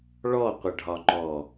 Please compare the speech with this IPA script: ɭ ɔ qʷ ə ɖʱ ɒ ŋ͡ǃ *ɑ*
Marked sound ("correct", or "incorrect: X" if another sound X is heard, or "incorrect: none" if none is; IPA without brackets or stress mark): incorrect: ɔ